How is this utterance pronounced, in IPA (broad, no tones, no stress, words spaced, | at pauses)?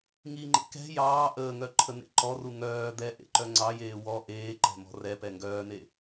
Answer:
ŋiŋ͡ǃḛ kɛ̤ jɑː ʔəːŋœ ǃʰənḛǃɔru ŋœː d̪ɛ ʔḛǃœŋ͡ǀɑjeː wɔ ʔeːǃɛ̤ mɔ̤rɛpɛ ŋɡœːne